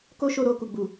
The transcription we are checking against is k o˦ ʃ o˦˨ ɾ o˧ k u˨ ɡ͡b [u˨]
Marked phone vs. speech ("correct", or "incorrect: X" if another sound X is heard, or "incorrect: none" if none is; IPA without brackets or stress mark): correct